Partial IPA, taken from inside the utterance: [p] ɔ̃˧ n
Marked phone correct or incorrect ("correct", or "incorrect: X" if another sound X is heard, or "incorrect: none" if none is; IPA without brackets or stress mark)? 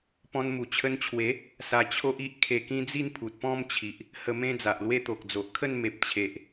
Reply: correct